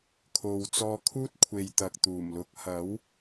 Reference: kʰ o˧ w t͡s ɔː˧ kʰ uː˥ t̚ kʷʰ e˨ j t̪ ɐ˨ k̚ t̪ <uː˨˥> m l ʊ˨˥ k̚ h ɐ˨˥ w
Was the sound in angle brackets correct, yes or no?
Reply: no